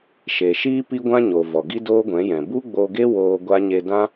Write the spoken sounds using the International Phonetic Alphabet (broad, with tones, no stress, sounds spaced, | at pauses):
ʃ e˨ ʃ iː˦ p i˦ ɡʷ ã˦ ɲ o˨ v ɔ˨ ɡ i˦ d oː˦ ɡʷ ɛ̃˨˦ j ɛ̃˨ b u˦ ɡ͡b o˧ ɡ e˦ w oː˧ ɡʷ a˦ ɲ e˧ d ã˦